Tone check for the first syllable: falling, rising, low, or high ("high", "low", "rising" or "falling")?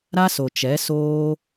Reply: high